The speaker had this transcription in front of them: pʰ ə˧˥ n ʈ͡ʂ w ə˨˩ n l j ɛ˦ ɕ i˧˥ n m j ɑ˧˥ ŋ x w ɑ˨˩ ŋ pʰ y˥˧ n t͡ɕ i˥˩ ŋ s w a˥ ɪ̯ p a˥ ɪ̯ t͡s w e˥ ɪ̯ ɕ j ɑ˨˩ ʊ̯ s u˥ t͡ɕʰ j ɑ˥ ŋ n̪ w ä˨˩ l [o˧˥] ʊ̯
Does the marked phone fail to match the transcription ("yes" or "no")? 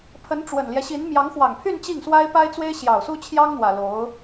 no